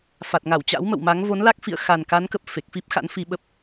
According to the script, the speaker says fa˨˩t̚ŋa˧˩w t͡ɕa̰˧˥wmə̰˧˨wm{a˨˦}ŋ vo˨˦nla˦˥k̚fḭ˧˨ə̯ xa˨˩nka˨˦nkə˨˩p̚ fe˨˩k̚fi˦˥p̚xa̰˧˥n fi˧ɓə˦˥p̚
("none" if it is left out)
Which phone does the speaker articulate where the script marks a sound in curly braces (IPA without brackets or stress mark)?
a˨˦